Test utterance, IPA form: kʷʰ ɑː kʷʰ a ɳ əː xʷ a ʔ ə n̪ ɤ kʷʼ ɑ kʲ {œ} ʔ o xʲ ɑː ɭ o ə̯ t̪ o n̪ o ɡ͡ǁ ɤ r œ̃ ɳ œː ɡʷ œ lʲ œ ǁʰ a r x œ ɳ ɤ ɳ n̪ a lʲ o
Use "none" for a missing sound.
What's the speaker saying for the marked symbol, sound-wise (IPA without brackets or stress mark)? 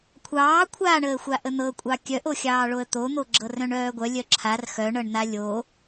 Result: œ